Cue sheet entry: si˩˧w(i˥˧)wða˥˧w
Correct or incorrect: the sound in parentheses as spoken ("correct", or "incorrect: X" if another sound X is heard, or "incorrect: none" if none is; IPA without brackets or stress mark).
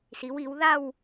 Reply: incorrect: i˩˧